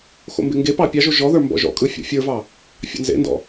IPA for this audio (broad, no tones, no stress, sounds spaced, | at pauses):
x o̰ m b ɪ ŋ ɡ e p ɑ pʲ ɑ ʒ o ʒ ɔ ð ə˞ m b ɔ̰ ʒ ɔ̰ kʼ ɯ fʲ ɔ̰ fʲ ə˞ v ɑ | fʲ ɑ̰ n z ḛ n d ɔ̰